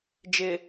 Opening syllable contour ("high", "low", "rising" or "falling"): low